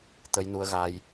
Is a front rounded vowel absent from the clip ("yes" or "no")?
yes